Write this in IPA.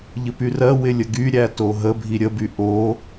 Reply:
ʎəpyrɜwɪ lʲəɡyɾʲæ toɦəbʱi ɾʲəby ʔo

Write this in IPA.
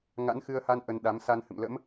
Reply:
ŋa̰˧˥nxɨ˧ə̯ha˧n ʔə˧nɗa˨˦m sa˧nhɨ̰˧˨mlə̰˧˥m

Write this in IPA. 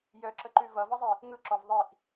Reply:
jœǁəǃʉ vʌvʌzˤi | ŋɯǁɔv ðˤiʔ

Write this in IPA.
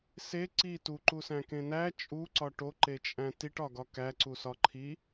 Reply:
se ǀi tuǃusæ̃kẽ næ t͡ʃʼuǀɒ ʈoǃet͡ʃʼæ̃ tiʈɒɡɒ kæǀusɒ ǃʰi

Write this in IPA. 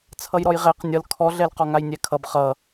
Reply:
t͡sʰʌjɾɔjʁɛq nʲʌl kʰɔɮɛl qɔŋajnʲɛkʰʌb χʌ

